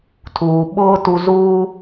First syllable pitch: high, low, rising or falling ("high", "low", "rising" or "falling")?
low